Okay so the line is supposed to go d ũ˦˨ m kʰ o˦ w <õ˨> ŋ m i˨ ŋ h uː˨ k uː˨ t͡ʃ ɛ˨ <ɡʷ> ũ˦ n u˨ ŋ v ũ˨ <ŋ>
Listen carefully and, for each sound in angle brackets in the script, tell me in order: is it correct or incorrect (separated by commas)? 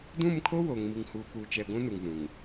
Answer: incorrect, correct, correct